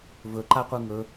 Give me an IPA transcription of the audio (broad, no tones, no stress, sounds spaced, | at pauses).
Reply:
v ɵ ǃ a qʷ ɯ ŋ ɵ